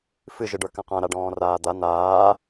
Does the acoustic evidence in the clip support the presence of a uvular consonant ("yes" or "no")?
yes